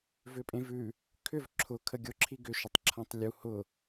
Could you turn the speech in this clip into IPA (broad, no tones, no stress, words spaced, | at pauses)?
vʏpʼẽvʉ | kʰʏv ǁʰʊ kʰəɡʲʊǁʰi ɡʏʃʊtˤǁʰãtˤ lʲu hʊ